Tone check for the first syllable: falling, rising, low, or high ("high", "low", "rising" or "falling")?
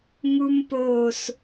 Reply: high